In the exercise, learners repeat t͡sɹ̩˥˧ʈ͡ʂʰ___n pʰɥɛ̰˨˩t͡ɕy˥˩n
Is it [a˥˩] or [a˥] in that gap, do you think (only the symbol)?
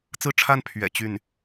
a˥˩